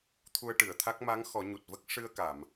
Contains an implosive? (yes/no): no